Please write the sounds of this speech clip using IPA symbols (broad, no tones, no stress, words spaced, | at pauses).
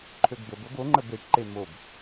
ǃʰøɡbəbɤb oŋ͡ǃəb eʈǃe mob